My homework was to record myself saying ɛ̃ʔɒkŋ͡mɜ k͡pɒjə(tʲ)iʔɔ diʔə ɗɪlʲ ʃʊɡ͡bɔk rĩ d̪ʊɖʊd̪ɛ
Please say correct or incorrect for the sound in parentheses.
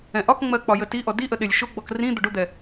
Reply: incorrect